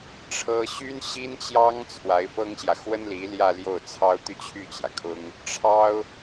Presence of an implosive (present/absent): absent